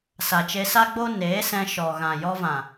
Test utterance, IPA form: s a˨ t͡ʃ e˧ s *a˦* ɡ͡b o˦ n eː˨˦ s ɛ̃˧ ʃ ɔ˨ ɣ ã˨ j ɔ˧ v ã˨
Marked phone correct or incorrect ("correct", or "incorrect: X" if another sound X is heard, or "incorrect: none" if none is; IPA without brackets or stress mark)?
correct